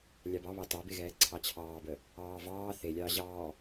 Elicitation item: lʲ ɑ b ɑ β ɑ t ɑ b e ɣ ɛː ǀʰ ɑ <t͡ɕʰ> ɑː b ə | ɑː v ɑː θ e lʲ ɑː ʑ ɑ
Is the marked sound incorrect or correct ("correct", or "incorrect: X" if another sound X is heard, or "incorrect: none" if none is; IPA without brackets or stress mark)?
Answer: correct